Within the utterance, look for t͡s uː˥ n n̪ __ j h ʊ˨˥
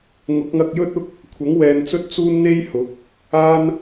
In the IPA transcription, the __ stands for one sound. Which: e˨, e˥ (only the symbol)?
e˥